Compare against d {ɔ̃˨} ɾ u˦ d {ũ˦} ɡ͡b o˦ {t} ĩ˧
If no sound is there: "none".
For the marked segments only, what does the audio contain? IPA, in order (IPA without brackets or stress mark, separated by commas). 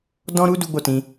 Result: ɔ̃˦, u˦, t